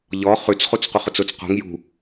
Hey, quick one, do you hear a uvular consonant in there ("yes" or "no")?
yes